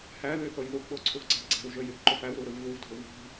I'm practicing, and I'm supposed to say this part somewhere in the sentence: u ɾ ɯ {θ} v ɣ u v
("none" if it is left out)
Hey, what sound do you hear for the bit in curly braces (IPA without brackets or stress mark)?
none